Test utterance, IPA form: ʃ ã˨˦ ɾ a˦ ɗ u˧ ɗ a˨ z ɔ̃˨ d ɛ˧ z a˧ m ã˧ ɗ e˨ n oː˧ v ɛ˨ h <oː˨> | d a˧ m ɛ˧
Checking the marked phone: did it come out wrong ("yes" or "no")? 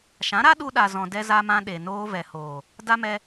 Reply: no